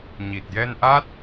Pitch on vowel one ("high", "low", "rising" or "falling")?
low